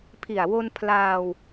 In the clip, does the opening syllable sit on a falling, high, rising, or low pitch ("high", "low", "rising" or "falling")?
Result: low